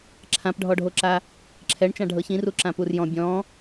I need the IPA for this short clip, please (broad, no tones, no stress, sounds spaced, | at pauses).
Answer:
ǁʰ ã p ɖʱ ɔ ɖʱ o ǁ a | ǁʰ ɛ ɳ t͡ʃ ã ɖʱ ɤ ç ĩ r u ǁ ã p u r j ɔ̃ bʲ ɔ̃